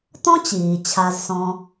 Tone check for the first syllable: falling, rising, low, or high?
high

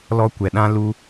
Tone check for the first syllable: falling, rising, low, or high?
high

